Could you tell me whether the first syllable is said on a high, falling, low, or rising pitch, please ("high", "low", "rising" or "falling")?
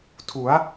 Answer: rising